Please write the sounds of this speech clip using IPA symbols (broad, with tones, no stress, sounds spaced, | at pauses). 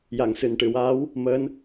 j a˨˩˨ ŋ s ɨ˨˩˨ n ʈ ɨ˨˩˨ w aː˧˥ w | m əː˧˥ n